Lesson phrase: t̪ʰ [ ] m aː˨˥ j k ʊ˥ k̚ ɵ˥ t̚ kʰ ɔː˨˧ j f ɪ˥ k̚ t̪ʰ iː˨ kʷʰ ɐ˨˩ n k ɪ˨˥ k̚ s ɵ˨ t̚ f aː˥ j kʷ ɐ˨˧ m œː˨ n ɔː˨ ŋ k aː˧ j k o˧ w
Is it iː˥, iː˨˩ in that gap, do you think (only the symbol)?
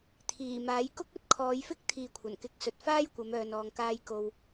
iː˨˩